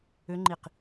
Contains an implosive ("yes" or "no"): no